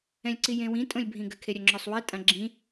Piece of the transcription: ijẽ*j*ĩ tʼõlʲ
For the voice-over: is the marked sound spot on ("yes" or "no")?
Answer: no